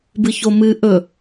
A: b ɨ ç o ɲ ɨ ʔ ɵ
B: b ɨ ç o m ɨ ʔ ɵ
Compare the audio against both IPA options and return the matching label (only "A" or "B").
B